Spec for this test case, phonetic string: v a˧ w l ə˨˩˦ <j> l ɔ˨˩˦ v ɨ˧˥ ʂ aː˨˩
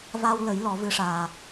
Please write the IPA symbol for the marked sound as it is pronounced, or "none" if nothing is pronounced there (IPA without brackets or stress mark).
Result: j